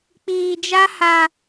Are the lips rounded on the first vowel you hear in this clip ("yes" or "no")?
no